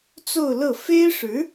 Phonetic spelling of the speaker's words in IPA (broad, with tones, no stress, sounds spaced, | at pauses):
t͡s o˥˧ ʊ̯ l ɤ˥˩ f e˥ ɪ̯ ʂ ɻ̩˧˥